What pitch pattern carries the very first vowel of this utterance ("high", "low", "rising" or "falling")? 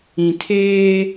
low